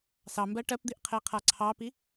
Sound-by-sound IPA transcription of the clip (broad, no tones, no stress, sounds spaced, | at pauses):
s ɑ m b ɜ ʈ ɜ p d̪ i ʔ qʰ e qʰ a ǀʰ ɑ p i